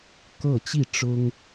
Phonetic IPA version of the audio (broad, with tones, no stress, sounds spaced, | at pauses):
k ɤ˥˨ t͡ɕ i˥˨ ʈ͡ʂ ʊ˦ ŋ